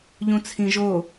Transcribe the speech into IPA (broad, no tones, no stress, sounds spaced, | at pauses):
ʎ ũ t͡sʰ ĩ ʒ o